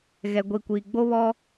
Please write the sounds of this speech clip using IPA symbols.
ɣ ɛ˨ ɡʷ i˨ kʷ iː˨ ɡ͡b o˦ β ɔ˦

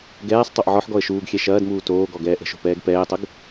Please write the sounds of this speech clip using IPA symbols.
ɡ ɛː sˤ tˤ o ʔ ʕ ɔ ħ ɡ ɔ ə̯ ʃ uː ɡ xʲ ɛ ʃ ɐː d m uː t oː ɡ ɔ ɡ ɛː ʔ ə̤ ʃ o̤ p ɛː ɡ p ɛː tˤ ə ɡ

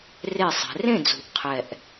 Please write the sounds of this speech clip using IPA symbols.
r e˥˩ sˤ ɛ̤˨˦ r ẽ˥˩ d͡z ṳ˨˩ ʔ qʰ ɛ˨˩ ʔ

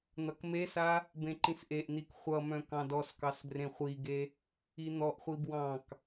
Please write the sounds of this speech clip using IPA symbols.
n̪ ʌ k m e s a | b ẽ ǃ ĩ s ʔ e ʔ n̪ i k χʷ ʌ m œ̃ k ɑ̃ d ɔ s k ɑ s b r ẽ χʷ i ɡ e | i n̪ ɔ ʔ χʷ i b w ɑ̃ k

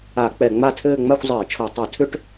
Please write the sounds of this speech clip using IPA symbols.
a˧˩˧ k͡p ɛ˧˩˧ ŋ͡m a˥˧ tʰ ɘː˥˧ ŋ͡m a˥˧ xʷ zˤ ɘː˧˩˧ t͡ʃʰ o˧˩˧ tˤ u˧˩˧ tʰ ʏ˥˧ ʈ

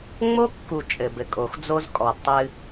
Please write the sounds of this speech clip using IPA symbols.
ŋ͡m o˦ kː u˨ t͡ʃʼ ɘ˨ b ɘ˨ kʼ o˨ x d͡z o˦ z kʼ ɔ˨ d tˤ ɨ˦

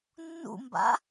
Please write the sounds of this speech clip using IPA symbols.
nː ṵ m b a̰

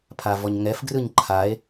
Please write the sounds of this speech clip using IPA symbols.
pʰ a v ɔ ɲ ŋ ɛ f ɡ r ɯ ɲ ǃʰ a e̯

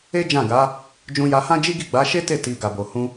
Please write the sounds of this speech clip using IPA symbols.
e˦ d͡ʒ ã˦˨ ɡ a˨˦ | d͡ʒ ũ˧ j a˧ h ã˦ d͡ʒ i˦ ɡ i˦˨ ɡ͡b a˨˦ ʃ e˦ t e˦˨ t i˨ ɡ a˨ b o˨ h ũ˧

